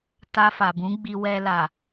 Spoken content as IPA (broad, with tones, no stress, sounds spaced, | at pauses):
t a˧ f a˨ b ũ˨˦ ɡ͡b i˧ w ɛ˧ l a˨